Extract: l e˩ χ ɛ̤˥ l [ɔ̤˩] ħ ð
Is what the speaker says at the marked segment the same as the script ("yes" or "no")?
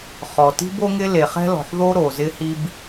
yes